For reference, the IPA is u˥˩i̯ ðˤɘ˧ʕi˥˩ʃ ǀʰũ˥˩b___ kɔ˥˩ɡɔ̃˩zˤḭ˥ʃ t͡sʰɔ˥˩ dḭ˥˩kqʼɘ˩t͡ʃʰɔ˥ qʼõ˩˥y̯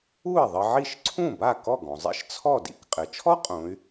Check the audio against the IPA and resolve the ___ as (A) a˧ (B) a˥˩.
B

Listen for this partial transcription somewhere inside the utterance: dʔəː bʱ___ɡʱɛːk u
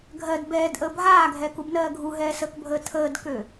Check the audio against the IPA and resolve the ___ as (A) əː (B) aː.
B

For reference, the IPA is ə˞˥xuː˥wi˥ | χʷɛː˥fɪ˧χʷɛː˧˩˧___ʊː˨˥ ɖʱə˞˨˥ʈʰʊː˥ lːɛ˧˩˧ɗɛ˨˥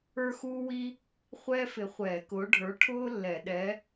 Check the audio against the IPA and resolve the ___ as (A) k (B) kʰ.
A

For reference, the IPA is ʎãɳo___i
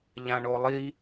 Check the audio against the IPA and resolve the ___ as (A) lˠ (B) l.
A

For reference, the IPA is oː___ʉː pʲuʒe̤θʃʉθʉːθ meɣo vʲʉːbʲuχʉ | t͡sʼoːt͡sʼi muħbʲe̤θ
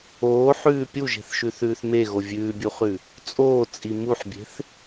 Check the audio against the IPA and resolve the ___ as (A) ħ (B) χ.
A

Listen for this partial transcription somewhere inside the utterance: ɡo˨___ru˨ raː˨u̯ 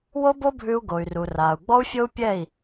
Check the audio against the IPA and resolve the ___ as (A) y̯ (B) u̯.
A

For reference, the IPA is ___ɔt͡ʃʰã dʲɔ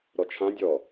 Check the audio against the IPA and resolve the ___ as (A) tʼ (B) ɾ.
B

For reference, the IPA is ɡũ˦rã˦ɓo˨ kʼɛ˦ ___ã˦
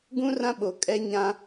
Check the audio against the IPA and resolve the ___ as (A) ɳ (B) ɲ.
B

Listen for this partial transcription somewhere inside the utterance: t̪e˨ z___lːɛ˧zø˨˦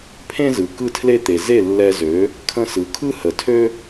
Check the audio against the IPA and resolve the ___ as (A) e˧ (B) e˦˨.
B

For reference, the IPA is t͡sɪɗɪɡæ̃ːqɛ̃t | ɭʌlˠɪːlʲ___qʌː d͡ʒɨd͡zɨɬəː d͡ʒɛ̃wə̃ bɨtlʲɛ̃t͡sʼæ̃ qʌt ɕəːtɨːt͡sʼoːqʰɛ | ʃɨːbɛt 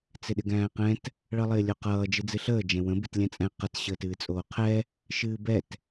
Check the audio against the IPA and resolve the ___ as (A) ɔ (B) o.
B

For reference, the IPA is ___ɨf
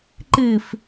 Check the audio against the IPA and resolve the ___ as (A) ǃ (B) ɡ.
A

